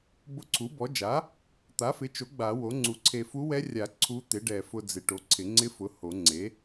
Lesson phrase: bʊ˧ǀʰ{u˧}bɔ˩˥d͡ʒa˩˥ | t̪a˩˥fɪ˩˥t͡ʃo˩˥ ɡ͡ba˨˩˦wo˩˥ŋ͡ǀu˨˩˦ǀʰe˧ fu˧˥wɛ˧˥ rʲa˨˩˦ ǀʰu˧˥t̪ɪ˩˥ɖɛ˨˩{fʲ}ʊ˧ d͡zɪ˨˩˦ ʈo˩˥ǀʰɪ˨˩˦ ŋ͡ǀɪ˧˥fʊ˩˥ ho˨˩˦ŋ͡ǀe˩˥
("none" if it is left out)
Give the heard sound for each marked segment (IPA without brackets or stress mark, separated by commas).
u˩˥, f